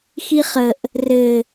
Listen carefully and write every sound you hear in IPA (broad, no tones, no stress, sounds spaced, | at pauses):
x i χ ə ʔ | r ɘ